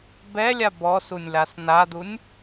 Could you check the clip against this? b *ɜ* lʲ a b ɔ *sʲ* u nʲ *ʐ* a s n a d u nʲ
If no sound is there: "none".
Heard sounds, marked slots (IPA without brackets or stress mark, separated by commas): ɛ, s, l